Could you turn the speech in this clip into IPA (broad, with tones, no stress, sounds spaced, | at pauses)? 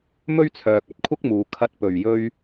m ɵ˥ ɥ t͡sʰ œː˨ k̚ ɐ˥ t̚ kʷʰ ɐ˥ k̚ m uː˨ kʰ ɐ˧ t̚ p ɵ˨˩ ɥ j ɵ˧ ɥ